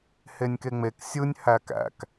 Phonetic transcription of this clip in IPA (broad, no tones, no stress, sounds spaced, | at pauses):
h e nʲ k e ŋ͡m e k sʲ ɯ nʲ h æ k æ̰ k